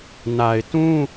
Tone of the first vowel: low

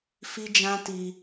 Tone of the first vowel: high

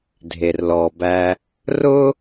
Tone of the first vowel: low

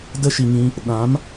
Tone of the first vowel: high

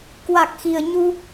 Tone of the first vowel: low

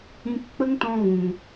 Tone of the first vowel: high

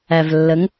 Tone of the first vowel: low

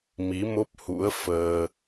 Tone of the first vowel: rising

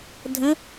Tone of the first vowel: rising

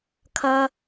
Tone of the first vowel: low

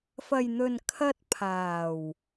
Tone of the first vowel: low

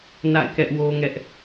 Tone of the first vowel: falling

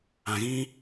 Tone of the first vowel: low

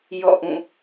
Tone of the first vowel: falling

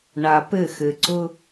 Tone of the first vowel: low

